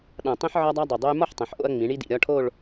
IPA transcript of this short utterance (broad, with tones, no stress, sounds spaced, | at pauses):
ɗ ã˧˩ tˤ ĩ˥ ħ ʕ ɒ˥ dˤ a˥ dˤ o˧˩ dˤ o˥ j m ɒ˥˧ ħ tˤ ɐ̃˩˧ ħ ʔ o̰˧ ɐ̯ ŋ͡m ĩ˩˧ ɳ i˥ d ḭ˧˩ ɾʲ ɒ˥˧ ʈʰ o˥˧ ɭ